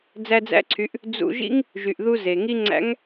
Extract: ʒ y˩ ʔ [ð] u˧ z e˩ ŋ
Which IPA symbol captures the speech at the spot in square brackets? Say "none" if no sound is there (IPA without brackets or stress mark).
ð